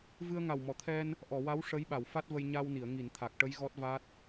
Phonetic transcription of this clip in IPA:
v ɨ˧ ə̯ ŋ a˨˩ w m ɔ˨˩˨ t̪ʰ ɛ˧ n | ʔ ɔ˨˩˨ w a˧˥ w ʂ ə˧˥ j ɓ a˨˩˨ w f a˦˥ t̚ v ə˧ j ɲ a˧ w n i˨˩˨ ə̯ ŋ i˨˩˨ n t̪ʰ a˨˩ k̚ ʈ ə˧˥ j ɣ ɔ˦˥ t̚ v a˦˥ t̚

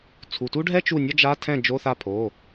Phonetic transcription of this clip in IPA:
t͡sʰ u˩˧˩ t u˥ ɖʱ ɛ˥ t͡ʃ u˥˩ nʲ ɔ˥ d͡ʒ a˧˥˧ tʰ ɛ̃˥˩ d͡ʒ o˧˥˧ θ a˥˩ pʰ o˩˧˩

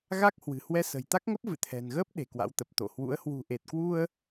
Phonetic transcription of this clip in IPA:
ɣ a˦˥ k̚ h w ɨ̤˨˩ h w ɛ˧ s ə̤˨˩ j t̪ a˦˥ k̚ ŋ ə˦˥ p̚ v ɨ̰˧˨ t̪ʰ ɛ̤˨˩ n ɣ əː˦˥ p̚ ɗ e̤˨˩ k w a̰˧˥ w t̪ ə˨˩ p̚ t̪ o̰˧˨ h w ṵ˧˥ ə̯ h w ṳ˨˩ ʔ e˨˩ t̚ k w u˧ ə̯

